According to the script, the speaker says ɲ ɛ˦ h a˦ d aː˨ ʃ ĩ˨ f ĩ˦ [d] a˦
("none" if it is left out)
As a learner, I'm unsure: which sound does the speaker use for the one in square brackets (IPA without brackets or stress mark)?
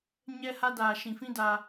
d